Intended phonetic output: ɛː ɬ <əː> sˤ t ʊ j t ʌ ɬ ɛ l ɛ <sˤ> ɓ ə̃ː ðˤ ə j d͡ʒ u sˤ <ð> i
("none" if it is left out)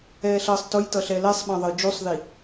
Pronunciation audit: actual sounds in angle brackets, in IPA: əː, sˤ, ð

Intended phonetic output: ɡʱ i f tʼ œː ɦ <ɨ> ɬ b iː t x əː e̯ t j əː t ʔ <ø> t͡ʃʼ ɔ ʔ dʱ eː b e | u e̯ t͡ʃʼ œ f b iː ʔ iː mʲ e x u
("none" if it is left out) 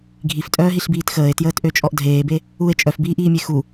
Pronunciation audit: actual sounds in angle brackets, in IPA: i, ø

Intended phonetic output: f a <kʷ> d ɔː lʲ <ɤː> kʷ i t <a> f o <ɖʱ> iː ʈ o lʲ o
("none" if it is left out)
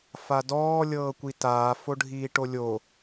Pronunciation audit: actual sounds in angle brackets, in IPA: none, ɤː, aː, ɖʱ

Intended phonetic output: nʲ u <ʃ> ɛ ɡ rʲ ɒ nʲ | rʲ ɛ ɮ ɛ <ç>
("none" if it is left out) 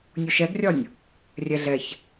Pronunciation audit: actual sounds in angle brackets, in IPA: ʃ, ç

